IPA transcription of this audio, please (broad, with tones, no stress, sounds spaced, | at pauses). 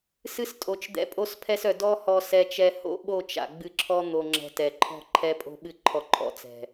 s ɨ˧ s tʼ o˨ t͡ʃ d̪ ɛ̰˧ pʼ o˦ s pʰ ɛ˦ s œ˨ d ɔ˦ h ɔ˧ s ɛ˧ t͡ʃ ɛ˧ h o̰˦ ɓ o˦˨ t͡ʃ a̰˨ ɡ͡b ɨ˧ ǁʰ ɔ˦ n̪ o˧ ŋ͡ǁ ɛ̤˧ t ɛ˨ ǃʰ ɔ̤˦˨ ǃʰ ɛ˦ pʼ o̤˦ ɓ ɨ˦ ǃʰ ɔ˦ ǃʼ ɔ̰˦ t͡s ɛ̤˨